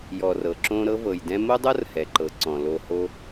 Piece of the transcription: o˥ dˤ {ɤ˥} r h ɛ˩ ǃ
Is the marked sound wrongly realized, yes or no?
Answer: no